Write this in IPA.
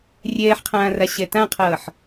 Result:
rʲɛːħqʰãːra ɕɛtãqʰʌːħ

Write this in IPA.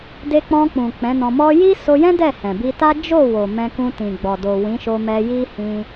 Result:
de˧k͡pɔ̃˧k͡pũ˨ k͡pɛ̃˨˦nɔ̃˧mɔ˦ ji˦so˧jɛ̃˦ dɛ˦˨hɛ̃˨bi˧ta˦ d͡ʒo˦˨wo˨ mɛ̃˧kũ˧ tĩ˨ɡ͡bɔ˨do˨ wĩ˨˦ʃo˧mɛ˧ ji˦hĩ˧

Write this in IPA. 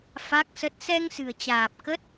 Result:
fa˦˥k̚sə˦˥t̚ sɛ˧ŋsɨ̤˨˩ə̯t͡ɕaː˨˩p̚ kə˦˥t̚

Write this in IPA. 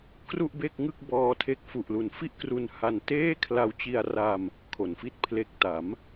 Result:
kru˥˩ʔbe˥˩k̚ŋɯ˥˩k̚ bɔː˧tʰe˦˥k̚fu˨˩ʔlu˨˩n fi˥˩ʔkru˧n ha˧nteː˥˩ kʰla˧wt͡ɕi˧a̯ ra˧m | kʰo˩˦nfi˥˩t̚ pʰle˨˩k̚ ta˩˦m

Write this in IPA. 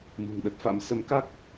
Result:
mṳ˨˩ŋɗə˦˥t̚fa̰˧˥m sə˨˦mka˦˥k̚

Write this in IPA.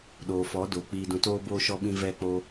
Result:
ɗoː˨fɔ˨˦doː˨ k͡piː˨dũ˨toː˧boː˧ ʃɔ˧ɓĩ˧ vɛ˧k͡po˧

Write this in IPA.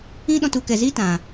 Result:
ĩ˦ɗɔ̃˧tu˨kɛ˨ zi˦tã˨

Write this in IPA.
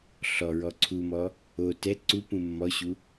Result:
ɬɔɹɔ ǀʰumɔ | o tɛ ǀupũ mːɔɕu

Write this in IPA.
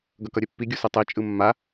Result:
ɡʌkʌɾʲɛpːi ɡʲusɯtˤe t͡ʃʼɯmːa

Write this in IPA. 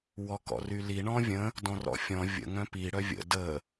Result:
wɔkɔ̰ryli ɳɔ̃vʲə̃ | dɔ̃rɔ̰fʲɔ̃ vʲə̰ ŋœ̃pi ɽœvʲə̰ də

